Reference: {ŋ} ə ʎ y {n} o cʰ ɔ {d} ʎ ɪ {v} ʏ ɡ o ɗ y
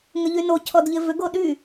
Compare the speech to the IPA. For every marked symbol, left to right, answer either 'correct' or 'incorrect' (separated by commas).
correct, correct, correct, correct